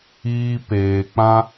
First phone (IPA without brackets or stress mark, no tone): iː